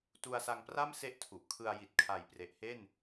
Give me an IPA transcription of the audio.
t u˧ a̯ s a˧ ŋ p r a˥˩ m s e˥˩ ʔ tʰ u˨˩ ʔ kʰ ɯ˧ a̯ j i˨˩ t̚ kʰ a˨˩ j p r e˨˩ ʔ h e˥˩ n

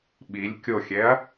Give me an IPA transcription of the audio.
ɓ i lʲ kʲ o xʲ ɛ ɐ̯

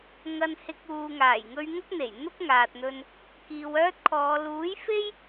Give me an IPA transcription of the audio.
ŋ ɐ˧ n h ɪ˧ k̚ uː˨ ŋ aː˨˩ j ŋ ɵ˧ ɥ ŋ ɐ˥ k̚ n̪ e˨˩ j n̪ ʊ˥ k̚ ŋ aː˨ t̚ n̪ ɵ˧ n | k iː˨ w œː˥ t̚ kʰ ɔː˨˧ l uː˨˥ j f e˥ j

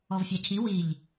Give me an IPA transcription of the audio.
ɔ v fʲ a cʰ i w i ʎ

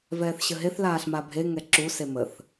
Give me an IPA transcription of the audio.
v ɛː θ ɕ ə ɦ e θ l aː ɬ m a bʱ e ŋ ɛ ǁ u s e m ə θ

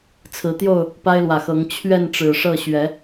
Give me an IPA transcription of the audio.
t͡sʰ ɹ̩˨˦ t̪ j o˥˨ ʊ̯ | p a˦ ɪ̯ l w ä˨˩ x ɤ˨˦ ŋ t͡ɕʰ ɥ ɛ˥˨ n ʈ͡ʂ ɻ̩˨˩ ʂ ɤ˥˨ ɕ ɥ ɛ˨˦

